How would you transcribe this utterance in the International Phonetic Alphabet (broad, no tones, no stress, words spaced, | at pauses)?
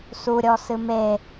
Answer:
suɾʲɔ sɨme